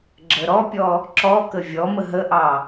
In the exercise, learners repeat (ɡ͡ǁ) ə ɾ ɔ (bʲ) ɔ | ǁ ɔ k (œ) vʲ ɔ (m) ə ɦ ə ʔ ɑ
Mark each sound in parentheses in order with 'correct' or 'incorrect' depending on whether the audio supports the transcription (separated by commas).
correct, incorrect, incorrect, correct